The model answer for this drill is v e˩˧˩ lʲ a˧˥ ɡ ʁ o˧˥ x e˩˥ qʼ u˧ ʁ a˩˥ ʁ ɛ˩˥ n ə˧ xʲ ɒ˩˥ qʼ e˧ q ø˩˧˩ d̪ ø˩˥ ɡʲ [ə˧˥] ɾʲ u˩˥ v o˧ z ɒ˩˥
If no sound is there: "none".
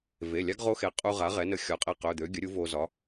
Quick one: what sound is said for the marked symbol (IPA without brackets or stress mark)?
ə˩˥